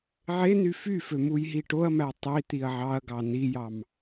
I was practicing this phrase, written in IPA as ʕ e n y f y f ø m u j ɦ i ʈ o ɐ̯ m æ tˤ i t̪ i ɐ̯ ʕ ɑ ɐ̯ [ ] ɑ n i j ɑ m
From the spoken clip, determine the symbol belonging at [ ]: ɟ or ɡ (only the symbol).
ɡ